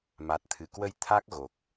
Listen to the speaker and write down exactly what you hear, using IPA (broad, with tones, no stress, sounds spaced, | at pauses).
m a˨˩ t̚ t̪ʰ ɨ˧˩ k w ə˧ j t̪ʰ a˦˥ k̚ ɣ o˨˩ k̚